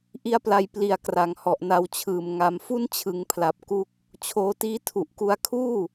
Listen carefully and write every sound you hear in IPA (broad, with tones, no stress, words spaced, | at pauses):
ʔi˦˥a̯pla˧j pli˨˩a̯ kra˩˦ŋhɔ˨˩ʔna˧wt͡ɕʰɯː˨˩m ŋa˧m fu˦˥nt͡ɕʰɯ˩˦ŋpʰla˨˩p̚ ku˦˥k̚ | t͡ɕʰoː˧tiː˦˥ tʰu˨˩ʔku˧a̯kʰuː˥˩